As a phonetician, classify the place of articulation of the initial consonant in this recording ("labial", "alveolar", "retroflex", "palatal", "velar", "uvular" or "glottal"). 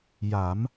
palatal